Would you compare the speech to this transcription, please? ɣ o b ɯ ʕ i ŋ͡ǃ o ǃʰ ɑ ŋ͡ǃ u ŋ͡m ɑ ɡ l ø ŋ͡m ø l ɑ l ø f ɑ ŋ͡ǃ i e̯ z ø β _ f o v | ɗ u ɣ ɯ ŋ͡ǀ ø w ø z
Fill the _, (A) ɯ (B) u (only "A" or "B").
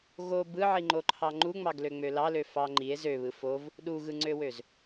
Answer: A